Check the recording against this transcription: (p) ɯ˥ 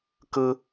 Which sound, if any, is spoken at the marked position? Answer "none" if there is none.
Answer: k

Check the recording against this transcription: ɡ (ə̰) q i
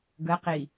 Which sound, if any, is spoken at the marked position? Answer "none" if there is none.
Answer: ə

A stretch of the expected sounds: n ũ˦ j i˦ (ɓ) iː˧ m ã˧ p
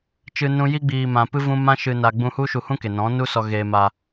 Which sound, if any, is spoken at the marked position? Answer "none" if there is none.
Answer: ɡ͡b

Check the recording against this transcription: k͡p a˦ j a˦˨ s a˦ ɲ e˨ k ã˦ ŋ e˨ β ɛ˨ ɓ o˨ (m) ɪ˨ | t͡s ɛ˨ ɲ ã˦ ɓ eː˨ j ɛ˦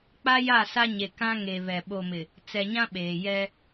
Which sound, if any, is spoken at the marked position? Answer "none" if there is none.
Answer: m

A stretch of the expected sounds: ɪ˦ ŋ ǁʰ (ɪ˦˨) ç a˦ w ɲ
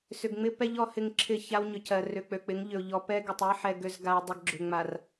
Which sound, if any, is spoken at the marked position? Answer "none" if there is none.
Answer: ɪ˦˨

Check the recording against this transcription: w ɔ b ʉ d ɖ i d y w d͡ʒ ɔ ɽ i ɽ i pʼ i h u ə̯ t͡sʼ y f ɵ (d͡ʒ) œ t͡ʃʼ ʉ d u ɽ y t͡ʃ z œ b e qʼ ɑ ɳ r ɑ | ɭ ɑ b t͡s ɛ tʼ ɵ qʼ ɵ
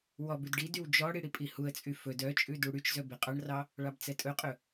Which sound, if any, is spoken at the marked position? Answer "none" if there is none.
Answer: d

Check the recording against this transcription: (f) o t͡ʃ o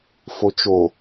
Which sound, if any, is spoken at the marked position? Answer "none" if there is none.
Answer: f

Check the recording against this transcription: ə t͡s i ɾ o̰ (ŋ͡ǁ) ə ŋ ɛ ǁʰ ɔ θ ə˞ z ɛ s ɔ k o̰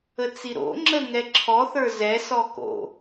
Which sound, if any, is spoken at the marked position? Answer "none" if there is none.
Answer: ŋ͡ǁ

